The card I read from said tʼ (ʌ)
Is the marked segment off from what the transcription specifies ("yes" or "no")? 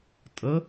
yes